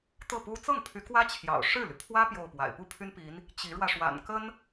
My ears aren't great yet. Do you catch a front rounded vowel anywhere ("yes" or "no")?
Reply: yes